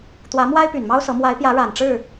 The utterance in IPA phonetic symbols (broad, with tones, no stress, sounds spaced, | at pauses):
t̪ w ä˨˦ m w a˦ ɪ̯ p y˨˩ n m ɑ˦ ʊ̯ s ɤ˨˦ m w a˨˦ ɪ̯ p j ä˨˦ ɻ a˨˩ n ʈ͡ʂ ɻ̩˥˨